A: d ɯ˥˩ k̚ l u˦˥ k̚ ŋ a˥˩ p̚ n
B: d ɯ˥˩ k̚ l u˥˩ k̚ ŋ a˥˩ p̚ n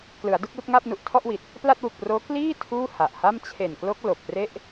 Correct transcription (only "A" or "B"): B